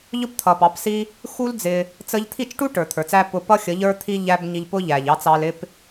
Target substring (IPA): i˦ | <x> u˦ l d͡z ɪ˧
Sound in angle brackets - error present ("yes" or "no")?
no